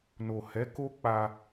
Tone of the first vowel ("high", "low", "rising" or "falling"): low